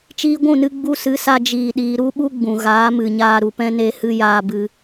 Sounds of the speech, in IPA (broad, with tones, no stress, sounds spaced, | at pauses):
t͡ʃ iː˧ ɡʷ ũ˦˨ n ɨ˧ ɡ͡b u˧ s ɨ˨˦ s a˧ d͡ʒ iː˨ ɗ iː˨ ɾ u˦ ɓ u˦ ɡ͡b ũ˨ ɣ aː˨˦ m ɨ˨ ɲ aː˧ ɾ u˨ p ɛ̃˦ n e˧ h ɨ˧ j aː˧ b ɨ˧